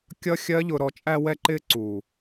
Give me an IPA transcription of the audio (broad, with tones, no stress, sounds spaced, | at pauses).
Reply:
kʲ ʌ˦ xʲ ɜ˦ ʎ ʊ˧ ɾ ɔ˧ t͡ʃʼ æ˧ w ɛ˧ ǃ ɪː˧ ǀ u˨